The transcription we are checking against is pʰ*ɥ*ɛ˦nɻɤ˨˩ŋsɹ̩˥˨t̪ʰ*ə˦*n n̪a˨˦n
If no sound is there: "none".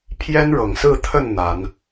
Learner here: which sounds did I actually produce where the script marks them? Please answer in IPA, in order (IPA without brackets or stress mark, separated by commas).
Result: j, ə˥˨